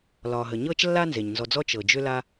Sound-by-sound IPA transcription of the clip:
l ɒː˩ ɦ ə˩ ɲ ɤː˥ t͡ʃ lː a˥ n z e˩ ɲ n z ɔ˩ d͡z ɔ˧ t͡ʃ ɤ˩ d͡ʒ ʏ˧ l a˧

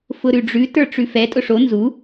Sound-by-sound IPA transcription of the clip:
f ʊ ɾ ʉ ɖ͡ʐ ʉ t ə˞ ʈ͡ʂ ʉ f ɛ tʼ ʊ ʂ o n z u

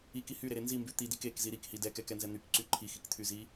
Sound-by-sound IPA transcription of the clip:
i k i h y ɾ e ɾ e n z i m b y t̪ i d i k e k z i ɾ i k h i d ɛ k ɛ k ɛ n z ɛ n̪ y k ǀ y ǃʰ i x i k t̪ʰ y z i

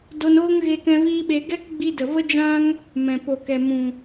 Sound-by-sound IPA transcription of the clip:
d o˧ n oː˦ ŋ ɣ e˧ k ɛ̃˧ v iː˦ ɓ e˧ ɡ ɛ˦ k ɡ͡b i˧ d ə˨ v ə˦ d͡ʒ ã˦ ŋ | m ɛ̃˨ p o˨ k ɛ˨ m ũ˨

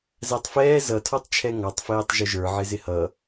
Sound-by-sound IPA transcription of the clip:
z æ tˤ f ɛː z ʌ tʰ ɔ tˤ t͡ʃʰ ɛ ŋ ɑ tˤ f ɛː tˤ ʒ ʊ ʒ ə˞ ʕ ɪ z ɪ h ʌ

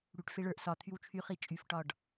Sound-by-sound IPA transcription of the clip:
ɽ y ʈ f e ɭ ə˞ ʔ s ɒ t̪ʰ y w t͡ʃʰ y χ i t͡ʃʼ y f ʈ ɒ ɖ

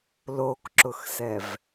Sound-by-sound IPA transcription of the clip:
l o k ǁ ʊ x s ɛ v

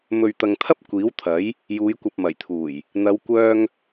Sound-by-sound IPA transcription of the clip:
m ɵ˨ ɥ t̪ ɐ˨ ŋ t̪ʰ ɐ˥ p̚ kʷ iː˨˥ w t̪ʰ ɐ˨˥ j | j uː˨˧ j kʷ ɐ˨ p̚ m ɐ˨˩ j t̪ʰ uː˨˩ j | n̪ ɐ˨˧ w kʷ œː˧ ŋ

